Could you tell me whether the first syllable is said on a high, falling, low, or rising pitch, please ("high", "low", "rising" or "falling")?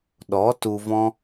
rising